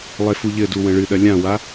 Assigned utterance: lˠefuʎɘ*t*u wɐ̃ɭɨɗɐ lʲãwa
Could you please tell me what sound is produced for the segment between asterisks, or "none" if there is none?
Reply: d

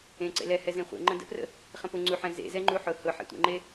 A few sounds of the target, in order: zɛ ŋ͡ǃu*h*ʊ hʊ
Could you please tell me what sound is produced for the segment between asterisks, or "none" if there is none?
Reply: ħ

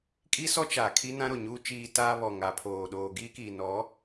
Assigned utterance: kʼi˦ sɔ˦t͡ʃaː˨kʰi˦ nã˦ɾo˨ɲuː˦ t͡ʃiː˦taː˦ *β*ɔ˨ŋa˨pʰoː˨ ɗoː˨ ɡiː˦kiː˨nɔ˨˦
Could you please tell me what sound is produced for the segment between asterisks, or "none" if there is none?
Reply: β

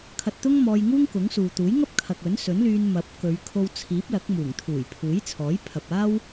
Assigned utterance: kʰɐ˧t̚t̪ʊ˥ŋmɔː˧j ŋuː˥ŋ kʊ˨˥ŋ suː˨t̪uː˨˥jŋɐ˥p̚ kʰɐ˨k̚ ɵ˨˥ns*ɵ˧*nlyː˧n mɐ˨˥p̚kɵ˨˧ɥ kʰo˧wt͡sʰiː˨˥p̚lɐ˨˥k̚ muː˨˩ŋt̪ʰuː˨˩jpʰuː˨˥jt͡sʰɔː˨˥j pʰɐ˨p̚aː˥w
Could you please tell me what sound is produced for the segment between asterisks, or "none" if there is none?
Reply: ɵ˨˥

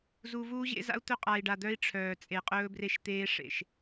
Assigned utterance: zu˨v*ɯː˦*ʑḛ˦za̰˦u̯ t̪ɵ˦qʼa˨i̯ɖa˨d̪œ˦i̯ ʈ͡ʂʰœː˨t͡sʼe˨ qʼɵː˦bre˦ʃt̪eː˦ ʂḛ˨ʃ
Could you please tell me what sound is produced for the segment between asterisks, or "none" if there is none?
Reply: uː˦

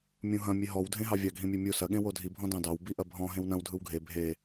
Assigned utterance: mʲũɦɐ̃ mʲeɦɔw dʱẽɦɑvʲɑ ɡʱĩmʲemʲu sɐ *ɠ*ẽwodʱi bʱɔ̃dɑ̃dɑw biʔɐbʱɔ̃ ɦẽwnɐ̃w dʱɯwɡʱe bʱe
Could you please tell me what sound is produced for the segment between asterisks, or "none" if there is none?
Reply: ɠ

